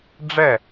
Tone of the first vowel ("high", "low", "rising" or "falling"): falling